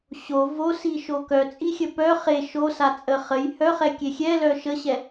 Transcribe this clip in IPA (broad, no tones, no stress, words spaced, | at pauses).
ɕo vosiʃo kœt͡sʼixʲə pœ χe ʃosat͡sʼə χəj hœχɛkʲe xʲɛlœ ʃəɕɛ